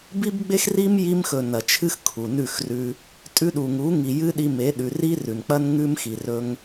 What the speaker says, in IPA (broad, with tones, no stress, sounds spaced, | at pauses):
b i˦ b ɡ͡b e˦ x r i˦ m j i˧ m x ɵ˨ n ɐ˨ t͡ʃʰ ɨ˦ x kʰ u˨ n ʉ˦˨ x r ʉ˧ | tʼ ʉ˧ ɗ u˨ ŋ u˨˦ ŋ i˨ j ɨ˦ ɗ i˧ m e˨˦ ɗ ʉ˨ r i˦ r ʉ˨ n k͡p ɐ˦ n ŋ ʉ˦ m x i˨ r ɵ˧ ŋ